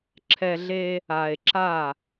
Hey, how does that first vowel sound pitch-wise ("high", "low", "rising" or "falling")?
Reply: low